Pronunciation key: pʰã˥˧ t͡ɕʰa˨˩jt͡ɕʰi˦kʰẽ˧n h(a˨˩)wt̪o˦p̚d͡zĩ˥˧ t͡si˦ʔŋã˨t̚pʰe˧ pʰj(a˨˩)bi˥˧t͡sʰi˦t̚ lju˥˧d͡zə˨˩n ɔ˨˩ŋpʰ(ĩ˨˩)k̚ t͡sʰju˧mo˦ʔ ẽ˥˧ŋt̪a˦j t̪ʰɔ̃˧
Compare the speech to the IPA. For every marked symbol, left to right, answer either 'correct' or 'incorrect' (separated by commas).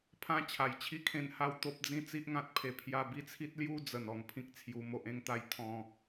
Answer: incorrect, incorrect, incorrect